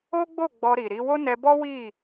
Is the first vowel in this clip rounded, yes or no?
yes